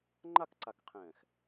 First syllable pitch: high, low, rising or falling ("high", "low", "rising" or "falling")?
falling